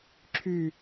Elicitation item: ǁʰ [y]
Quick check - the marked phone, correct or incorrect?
correct